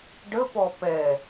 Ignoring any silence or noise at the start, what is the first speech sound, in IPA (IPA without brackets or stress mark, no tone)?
ɖ